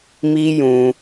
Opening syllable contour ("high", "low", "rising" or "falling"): high